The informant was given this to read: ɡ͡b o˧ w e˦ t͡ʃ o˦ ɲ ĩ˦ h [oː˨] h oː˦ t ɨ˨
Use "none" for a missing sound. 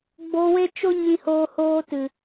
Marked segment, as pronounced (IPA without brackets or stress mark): oː˦